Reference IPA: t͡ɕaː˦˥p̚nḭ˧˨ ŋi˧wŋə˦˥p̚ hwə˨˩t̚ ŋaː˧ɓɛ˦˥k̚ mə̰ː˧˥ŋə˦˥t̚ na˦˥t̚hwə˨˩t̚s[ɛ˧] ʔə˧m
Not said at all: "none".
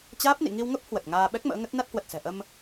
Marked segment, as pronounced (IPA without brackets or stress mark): ɛ̤˨˩